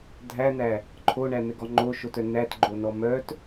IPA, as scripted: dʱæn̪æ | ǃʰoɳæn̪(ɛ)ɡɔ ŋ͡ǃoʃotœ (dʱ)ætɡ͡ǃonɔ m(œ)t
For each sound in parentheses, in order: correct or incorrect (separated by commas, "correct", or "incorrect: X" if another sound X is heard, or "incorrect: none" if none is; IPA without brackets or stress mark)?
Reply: correct, incorrect: n, correct